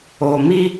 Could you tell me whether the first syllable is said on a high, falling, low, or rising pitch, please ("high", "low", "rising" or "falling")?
low